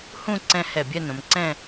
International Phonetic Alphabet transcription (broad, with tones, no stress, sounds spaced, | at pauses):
h ũ˥˧ ǀ ɛ̃˧ h ɛ˧˩ bʲ ɛ˥˧ n õ˩˧ m ǀ ɛ̃˥˧